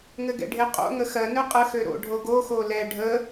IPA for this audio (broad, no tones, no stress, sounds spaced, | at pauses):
ŋ ɘ ɡ ɛ̰ ɖʱ e qʼ o̰ ŋ ə x ɜ n ø qʼ ə x ø ɾ o̰ ɖʱ o ɡ o x o l ɛ ɖʱ ə